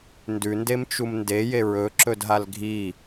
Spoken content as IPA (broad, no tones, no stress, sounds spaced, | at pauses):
n d ʉ n d e m t͡ʃ u m n d e j e ɹ ɵ ǁ ɵ d ɦ a l ɡʱ i